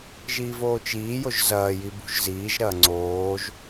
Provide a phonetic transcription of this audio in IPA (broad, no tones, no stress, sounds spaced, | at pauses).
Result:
ʒ iː v oː t͡ʃ iː j o ʒ z ɐː j i b ṳ ʒ z iː ʒ ɾ ɐː ŋ͡ǀ oː ʒ